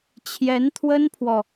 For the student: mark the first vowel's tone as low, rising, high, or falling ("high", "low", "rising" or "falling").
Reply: rising